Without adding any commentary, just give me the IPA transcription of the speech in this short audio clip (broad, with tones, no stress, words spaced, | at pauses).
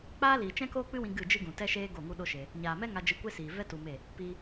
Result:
k͡paː˦liː˨ t͡ʃɛ̃˦koː˦k͡pɨ˦wĩ˧ ɡɨ˦˨d͡ʒɨ˦ɡũ˨ tɛ˦ʃeː˦ ɡo˦˨ŋu˦ɗo˦ʃe˧ | ɲaː˨mɛ˦ŋa˧ d͡ʒɨ˧kʷe˦siː˨ vɛ˦ tu˧me˦˨ | piː˧